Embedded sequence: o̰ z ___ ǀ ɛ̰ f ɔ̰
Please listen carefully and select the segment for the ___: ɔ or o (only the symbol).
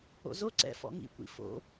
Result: o